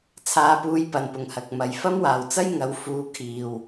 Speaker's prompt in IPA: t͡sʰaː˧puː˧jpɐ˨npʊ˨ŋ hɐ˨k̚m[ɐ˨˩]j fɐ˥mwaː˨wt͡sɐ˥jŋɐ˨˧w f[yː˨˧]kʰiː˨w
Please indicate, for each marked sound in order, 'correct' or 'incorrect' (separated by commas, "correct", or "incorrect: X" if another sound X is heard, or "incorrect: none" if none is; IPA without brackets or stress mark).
incorrect: ɐ˨, incorrect: uː˨˧